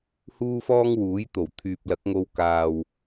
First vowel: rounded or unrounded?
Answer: rounded